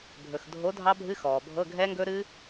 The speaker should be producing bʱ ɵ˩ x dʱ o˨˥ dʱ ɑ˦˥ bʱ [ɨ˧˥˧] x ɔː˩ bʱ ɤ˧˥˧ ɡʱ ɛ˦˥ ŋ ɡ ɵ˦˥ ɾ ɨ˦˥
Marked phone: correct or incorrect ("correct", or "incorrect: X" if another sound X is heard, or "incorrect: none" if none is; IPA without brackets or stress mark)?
correct